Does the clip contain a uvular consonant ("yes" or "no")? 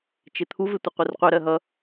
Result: yes